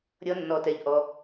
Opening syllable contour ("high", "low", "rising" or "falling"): high